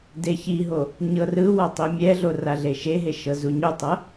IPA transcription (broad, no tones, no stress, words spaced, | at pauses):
deçiɦo | ɲɤrɯwa tˤimʲɛɮo raɮeʃeɦe ʃɤzuɲutˤɤ